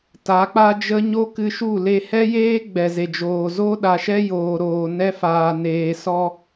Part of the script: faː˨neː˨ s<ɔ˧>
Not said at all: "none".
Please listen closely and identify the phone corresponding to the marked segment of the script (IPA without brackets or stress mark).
ɔ˧